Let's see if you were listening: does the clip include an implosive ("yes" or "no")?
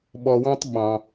yes